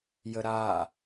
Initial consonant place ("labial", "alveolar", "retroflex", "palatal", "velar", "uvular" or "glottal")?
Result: palatal